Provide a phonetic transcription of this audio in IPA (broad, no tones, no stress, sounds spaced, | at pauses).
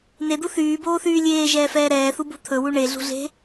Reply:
n e d̪ u θ yː b oː θ yː lʲ eː ʒ ɛː f ɛː ɾ ɛː θ u b ṳ t̪ʰ ɵ w u ɳ e ɮ ṳ ɮ e̤